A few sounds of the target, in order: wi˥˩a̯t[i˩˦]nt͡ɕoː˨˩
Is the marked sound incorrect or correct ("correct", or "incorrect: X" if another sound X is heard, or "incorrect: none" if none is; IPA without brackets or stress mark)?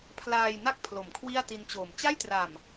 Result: incorrect: i˦˥